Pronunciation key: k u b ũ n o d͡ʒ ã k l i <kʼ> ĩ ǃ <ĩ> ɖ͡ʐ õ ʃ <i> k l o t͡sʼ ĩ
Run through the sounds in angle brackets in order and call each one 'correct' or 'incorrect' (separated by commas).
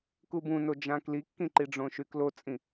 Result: incorrect, incorrect, incorrect